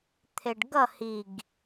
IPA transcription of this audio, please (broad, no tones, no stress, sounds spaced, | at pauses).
t̪ʰ e ɖ ɡ ʌ h i ɡ